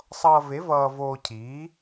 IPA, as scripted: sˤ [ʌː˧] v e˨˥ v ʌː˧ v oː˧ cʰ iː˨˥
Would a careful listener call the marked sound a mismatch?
no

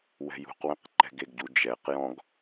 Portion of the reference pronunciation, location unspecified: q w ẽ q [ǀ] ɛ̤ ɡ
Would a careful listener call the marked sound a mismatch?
yes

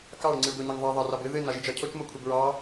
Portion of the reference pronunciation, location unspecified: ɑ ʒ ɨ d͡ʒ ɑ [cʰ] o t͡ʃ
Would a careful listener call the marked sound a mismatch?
no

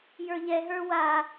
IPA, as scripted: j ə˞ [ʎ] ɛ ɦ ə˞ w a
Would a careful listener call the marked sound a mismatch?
no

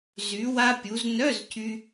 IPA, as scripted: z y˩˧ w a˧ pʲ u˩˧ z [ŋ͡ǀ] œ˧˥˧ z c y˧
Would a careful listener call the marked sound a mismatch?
yes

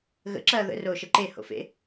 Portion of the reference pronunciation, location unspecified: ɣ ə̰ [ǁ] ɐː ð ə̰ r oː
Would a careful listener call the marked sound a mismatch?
no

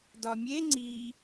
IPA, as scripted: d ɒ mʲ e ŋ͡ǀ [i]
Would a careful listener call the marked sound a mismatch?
no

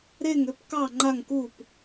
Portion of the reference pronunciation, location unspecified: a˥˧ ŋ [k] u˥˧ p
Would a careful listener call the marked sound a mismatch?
no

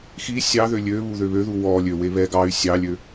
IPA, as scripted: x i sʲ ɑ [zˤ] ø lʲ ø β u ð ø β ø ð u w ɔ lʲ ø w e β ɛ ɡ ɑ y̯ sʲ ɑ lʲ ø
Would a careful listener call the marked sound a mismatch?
yes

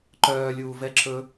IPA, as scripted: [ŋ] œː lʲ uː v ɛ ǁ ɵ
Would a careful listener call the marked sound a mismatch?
yes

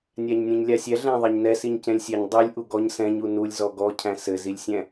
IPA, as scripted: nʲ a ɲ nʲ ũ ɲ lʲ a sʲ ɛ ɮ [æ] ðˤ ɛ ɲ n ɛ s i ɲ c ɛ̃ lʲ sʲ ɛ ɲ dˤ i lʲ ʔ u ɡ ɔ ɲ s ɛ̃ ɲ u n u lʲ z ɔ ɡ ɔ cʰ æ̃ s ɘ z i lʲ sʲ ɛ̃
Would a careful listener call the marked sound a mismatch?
yes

